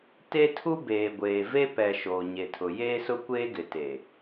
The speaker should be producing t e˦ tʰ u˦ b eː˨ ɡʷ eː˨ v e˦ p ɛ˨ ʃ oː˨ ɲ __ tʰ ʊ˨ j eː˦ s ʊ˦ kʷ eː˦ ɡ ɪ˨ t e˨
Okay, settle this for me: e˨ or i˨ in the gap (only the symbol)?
e˨